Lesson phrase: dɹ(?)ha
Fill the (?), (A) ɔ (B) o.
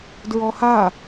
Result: A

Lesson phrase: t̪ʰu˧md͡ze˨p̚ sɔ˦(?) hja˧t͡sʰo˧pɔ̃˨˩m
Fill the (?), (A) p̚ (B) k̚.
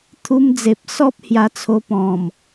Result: A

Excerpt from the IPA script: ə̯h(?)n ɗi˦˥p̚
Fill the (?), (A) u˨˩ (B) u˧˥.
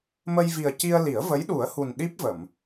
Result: A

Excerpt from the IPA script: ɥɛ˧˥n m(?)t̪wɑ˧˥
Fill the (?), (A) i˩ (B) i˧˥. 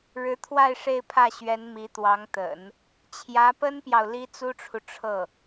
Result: B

